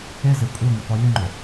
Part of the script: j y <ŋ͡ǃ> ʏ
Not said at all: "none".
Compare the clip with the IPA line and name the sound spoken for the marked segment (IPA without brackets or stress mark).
ŋ͡ǃ